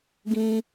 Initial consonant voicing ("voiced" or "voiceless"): voiced